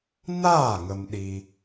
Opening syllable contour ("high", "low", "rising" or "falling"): falling